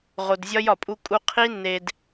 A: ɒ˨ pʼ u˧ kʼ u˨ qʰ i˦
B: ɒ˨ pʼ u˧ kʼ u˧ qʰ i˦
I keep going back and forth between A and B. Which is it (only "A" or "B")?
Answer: B